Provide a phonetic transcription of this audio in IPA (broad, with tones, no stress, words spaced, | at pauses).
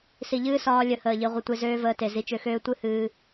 si˨ʎɨː˦sɒː˧ lʲə˨˦həː˨ʎi˨ ʁʷə˧tʷe˧ zøː˦vəː˧te˨ zi˧t͡ʃø˧xøː˦ tʷɨ˦hɨː˧